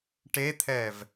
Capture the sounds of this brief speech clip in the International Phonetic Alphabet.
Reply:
ʈ e t̪ʰ ɛ v

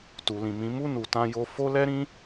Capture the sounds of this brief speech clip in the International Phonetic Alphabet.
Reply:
t u˨ l ĩ˨ m ĩ˨˦ m u˦˨ n u˨ t ã˧ j o˧ f o˦ l ɛ˦ ɾ ĩ˦

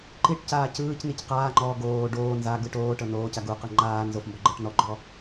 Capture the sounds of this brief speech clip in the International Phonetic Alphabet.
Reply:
ǃ i ʈ c aː c ɯː c n i c q aː ŋ͡ǃ ɔː ɡ oː ɖ oː n z a ɡ ɯ ʈ oː ʈ ɤ n oː c a ɡ u q ɯ ŋ͡ǃ aː n z o f m b ɔ ɡ͡ǃ ɤ ʈ n ɔ ɡ͡ǃ ɔ

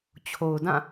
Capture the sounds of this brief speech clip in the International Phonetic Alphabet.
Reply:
t͡ɕʰ o˨ ʊ̯ d ã˦˨

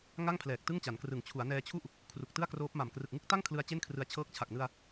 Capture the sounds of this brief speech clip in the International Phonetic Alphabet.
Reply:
ŋ a˥˩ ŋ pʰ l ɛː˨˩ k̚ t ɯ˥˩ ŋ t͡ɕ a˩˦ n k r ɯ˨˩ ŋ t͡ɕʰ u˩˦ a̯ n ɛː˧ t͡ɕʰ u˥˩ ʔ | kʰ r u˨˩ k̚ t ɯ˥˩ a̯ k r oː˦˥ p̚ m a˨˩ m k r ɯ˨˩ k̚ ŋ ɯ˥˩ k̚ t a˥˩ ŋ kʰ l ɯ˧ a̯ t͡ɕ e˥˩ n kʰ r ɯ˦˥ a̯ t͡ɕʰ ɤː˦˥ k̚ t͡ɕʰ a˨˩ k̚ n ɯ˧ a̯

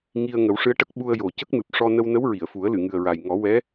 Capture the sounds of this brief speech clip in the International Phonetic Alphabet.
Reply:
ŋ i˧ ə̯ ŋ ə˨˩˦ w ʂ ɨ˧˥ ə̯ ʈ ə˦˥ k̚ ɓ u˧ ə̯ j o˨˩ c ə˦˥ k̚ m ɨ˨˩ p̚ ʂ ɔ˧ n ə˧ w n ə˧˥ w ɹ i˨˩˨ ə̯ f u˨˩˦ ə̯ l ɨ˨˩˨ ŋ ɨ˨˩ ə̯ ɹ a˨˩ j ŋ ɔ˨˩˦ w ɛ˧˥

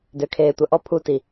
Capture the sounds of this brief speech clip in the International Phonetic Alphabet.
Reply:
d ø˨ kʰ eː˨ tʷ ɐ˨ ʔ ɔ˦ pʰ u˦˨ t i˨

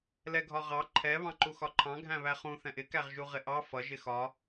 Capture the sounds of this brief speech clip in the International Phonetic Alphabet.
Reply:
l ɛ ɡʱ ɒ ʁ ɑ ǃʰ ɛ β ɑ̃ ǃ u x ɒ ǃʰ ɑ̃ ɡʱ æ̃ β æ χ ũ θ ɛ̃ ʔ ɪ k æ ʁ ʒ u ʁ ɪ ʔ ɑ f ʌ ʒ ɪ x ɒ

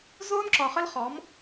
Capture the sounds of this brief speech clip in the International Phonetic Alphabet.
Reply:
z ʊː˦ n ǁ ɒ˨ χ ə˦ l χ ɔ˨˦ m

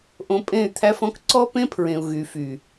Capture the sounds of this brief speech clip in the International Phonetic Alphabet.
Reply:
ʔ õ˧ pʼ ẽ˦˨ y̯ t̪ʰ æ˦ f ɔ̃˦ k ǀ ɔ˦ p ẽ˦ pʰ ɹ ẽ˨ u̯ ɣ y˨ f y˨

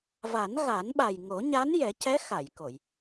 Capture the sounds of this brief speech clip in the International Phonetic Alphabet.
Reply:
v a˨˩˦ n ɣ a˨˩˦ n ɓ a˨˩ j ŋ o˨˩˦ ɲ a˧˥ n j ɛ˨˩˦ c ɛ˧˥ x a˨˩˨ j k o˨˩˨ j

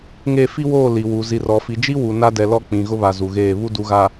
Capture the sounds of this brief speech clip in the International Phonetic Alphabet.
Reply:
ŋ e˦˨ f i˦ w oː˦˨ l i˨ w u˨ z i˨ r ɔ˨ f i˨ d͡ʒ i˦ w u˨ n a˦ d ɛ˨ l ɔ˦ k͡p ĩ˨ ɣ ʊ˦ β a˨ z u˨ ɣ eː˦˨ β u˦ d u˨ ɣ a˨

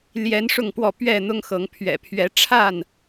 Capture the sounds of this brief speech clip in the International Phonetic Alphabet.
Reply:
l j ɛ˨˦ n ʂ ʊ˥˨ ŋ p w ɔ˥˨ p ɥ ɛ˥˨ n̪ ʊ˦ ŋ x ɤ˨˦ ŋ pʰ ɥ ɛ̰˨˩ pʰ ɥ ɛ˨˦ ʈ͡ʂʰ a˥˨ n

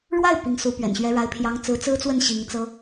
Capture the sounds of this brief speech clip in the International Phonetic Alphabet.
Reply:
ɻ w a˥˩ ɪ̯ p i˧˥ ŋ s u˧˥ p ɥ ɛ̰˨˩ n ɕ ɥ ɛ˥ ɻ a˥ ɪ̯ pʰ j ɑ˥ ŋ t͡s ɹ̩˧˥ t͡s ɹ̩˥ t͡s w ə˥˩ n ɕ i˧˥ ŋ t͡s ɤ˥

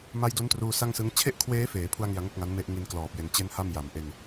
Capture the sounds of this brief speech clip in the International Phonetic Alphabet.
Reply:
m a˦˥ j d o˦˥ n t r uː˧ s a˥˩ ŋ s ɯ˦˥ ŋ t͡ɕʰ e˥˩ ʔ kʰ w eː˦˥ f eː˩˦ pʰ u˥˩ a̯ ŋ i˧ a̯ ŋ o˥˩ k̚ ŋ a˦˥ n m e˥˩ ʔ ŋ i˦˥ n k l ɔː˨˩ p̚ j e˧ n t͡ɕ e˥˩ n h a˥˩ m j a˩˦ m ʔ e˧ n

